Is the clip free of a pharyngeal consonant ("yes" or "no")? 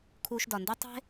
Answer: yes